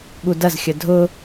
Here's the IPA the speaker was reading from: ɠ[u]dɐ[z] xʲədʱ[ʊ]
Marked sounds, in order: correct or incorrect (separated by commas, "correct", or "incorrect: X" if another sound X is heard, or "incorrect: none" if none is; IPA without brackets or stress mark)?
correct, correct, correct